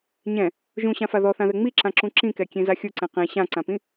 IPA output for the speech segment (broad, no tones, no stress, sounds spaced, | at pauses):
ɲ ɛ̃ | ʒ ũ ɕ ã f a ð ɔ θ ã ð ɛ ŋ͡m i ǁ ã ǁ ũ ǁ ĩ k ɛ kʲ ẽ z a xʲ u ǀ ɛ̃ q ẽ ɕ ã ǀ ã p ĩ